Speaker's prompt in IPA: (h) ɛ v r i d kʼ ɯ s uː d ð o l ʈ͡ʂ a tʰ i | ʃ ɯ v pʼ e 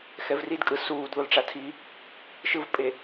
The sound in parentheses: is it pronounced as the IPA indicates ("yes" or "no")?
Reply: no